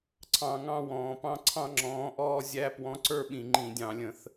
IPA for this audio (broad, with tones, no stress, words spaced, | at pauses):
ǀʰɑ̃˧˩˧ ŋɑ̃˥˧wɔ̃ː˩˧pɑ̃˥˧ ǀʰɑ̃˥˧ŋ͡ǁɔ̃ː˨˥ʔɔː˥˧ zʲæ˦˥ pwɔ̃˨˥ǀə˞˥˧ ɓĩ˧˩˧ŋ͡ǃĩ˧˩˧dʲɑ̃˧˩˧lʲə̃˩˧θ